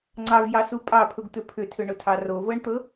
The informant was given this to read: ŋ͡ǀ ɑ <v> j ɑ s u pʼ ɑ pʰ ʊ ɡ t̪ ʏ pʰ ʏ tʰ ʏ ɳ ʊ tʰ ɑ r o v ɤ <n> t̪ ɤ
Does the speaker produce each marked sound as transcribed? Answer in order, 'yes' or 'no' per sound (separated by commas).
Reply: yes, no